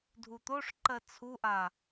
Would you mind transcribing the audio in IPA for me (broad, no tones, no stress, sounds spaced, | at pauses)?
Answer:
dʱ u t̪ o ʂ ǃ ɜ t͡sʰ u ʔ a